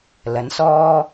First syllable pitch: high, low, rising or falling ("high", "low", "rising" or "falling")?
rising